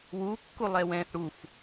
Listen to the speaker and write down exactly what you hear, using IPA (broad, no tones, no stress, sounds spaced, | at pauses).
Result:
w u kː u lˠ ɛ w ɛ̃ θ ɽ u f